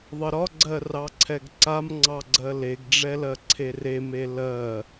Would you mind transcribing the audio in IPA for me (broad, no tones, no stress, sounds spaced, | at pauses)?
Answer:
ðˤ ə ɾ ɒ ɡ͡ǀ ɜ r ɑ ǀʰ ɛ ɡ ǀ a m ŋ͡ǀ ɑ ɡ͡ǀ ɜ l e ɡ ɖ͡ʐ ɛ l ɜ ǀʰ e r e m e l ɜ